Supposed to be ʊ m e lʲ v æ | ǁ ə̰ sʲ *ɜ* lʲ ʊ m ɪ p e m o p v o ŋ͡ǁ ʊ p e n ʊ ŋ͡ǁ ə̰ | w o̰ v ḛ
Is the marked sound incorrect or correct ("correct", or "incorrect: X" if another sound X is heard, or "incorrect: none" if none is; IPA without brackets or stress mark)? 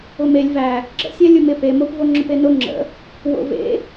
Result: incorrect: æ